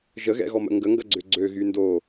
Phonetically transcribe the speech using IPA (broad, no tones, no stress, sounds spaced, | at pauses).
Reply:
ʒ ə ɣ ɛ̰ ɣ ɔ m ə̰ ŋ ɡ ə ŋ ɡ ɐ ɡ͡ǀ ʏ ɡ͡ǀ ø ɣ y n d o